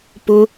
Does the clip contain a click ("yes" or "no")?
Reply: no